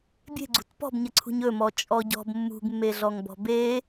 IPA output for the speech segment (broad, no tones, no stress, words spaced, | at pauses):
bʲe̤ɡ͡ǀṳt pɔ̤bɲəǀʰṳɲ ɵmɔ t͡ʃʼɔɟɔ̤b mːṳɡmːeɮɔŋbɔ̤ be